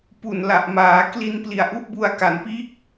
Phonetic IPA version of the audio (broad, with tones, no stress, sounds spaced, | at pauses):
p u˨˩ n l a˨˩ ʔ m aː˩˦ k l i˧ n p l i˨˩ a̯ ʔ u˦˥ ʔ b u˧ a̯ k a˨˩ n p iː˥˩ k̚